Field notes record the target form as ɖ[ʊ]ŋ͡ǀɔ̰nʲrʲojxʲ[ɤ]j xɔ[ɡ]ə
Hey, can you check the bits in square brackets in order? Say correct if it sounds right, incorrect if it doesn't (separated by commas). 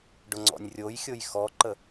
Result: correct, incorrect, incorrect